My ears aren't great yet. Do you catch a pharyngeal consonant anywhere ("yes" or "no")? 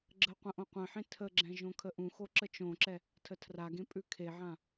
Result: yes